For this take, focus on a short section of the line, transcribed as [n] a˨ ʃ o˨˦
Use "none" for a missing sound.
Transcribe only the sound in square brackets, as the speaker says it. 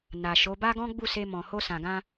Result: n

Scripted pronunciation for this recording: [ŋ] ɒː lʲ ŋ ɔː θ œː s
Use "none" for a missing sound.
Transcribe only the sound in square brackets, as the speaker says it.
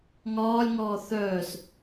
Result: ŋ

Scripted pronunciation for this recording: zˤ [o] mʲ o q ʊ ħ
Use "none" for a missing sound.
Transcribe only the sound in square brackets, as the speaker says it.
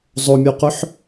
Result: o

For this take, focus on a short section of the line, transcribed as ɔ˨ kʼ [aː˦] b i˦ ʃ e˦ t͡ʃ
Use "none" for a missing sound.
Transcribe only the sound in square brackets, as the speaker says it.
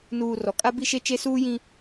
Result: a˦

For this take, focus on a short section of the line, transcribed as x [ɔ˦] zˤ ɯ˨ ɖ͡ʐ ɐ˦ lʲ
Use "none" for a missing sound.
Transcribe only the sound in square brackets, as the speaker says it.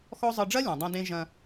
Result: ɔ˦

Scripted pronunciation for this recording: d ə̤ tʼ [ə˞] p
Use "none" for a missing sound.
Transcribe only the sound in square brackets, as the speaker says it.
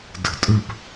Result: ə˞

